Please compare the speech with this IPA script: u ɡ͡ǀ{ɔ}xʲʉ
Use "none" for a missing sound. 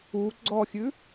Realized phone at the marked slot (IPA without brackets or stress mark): ɔ